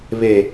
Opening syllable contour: low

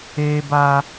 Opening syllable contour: high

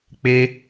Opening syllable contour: high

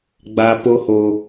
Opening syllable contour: high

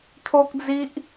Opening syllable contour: high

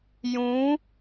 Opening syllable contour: rising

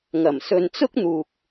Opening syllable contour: low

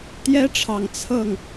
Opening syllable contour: high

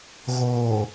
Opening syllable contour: low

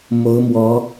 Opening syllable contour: rising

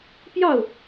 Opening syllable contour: falling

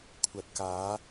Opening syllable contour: low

